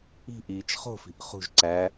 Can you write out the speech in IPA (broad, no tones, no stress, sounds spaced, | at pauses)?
i̤ ʔ iː t͡ʃ χ o̤ f i̤ ʔ χ ṳ ʒ ǀ æ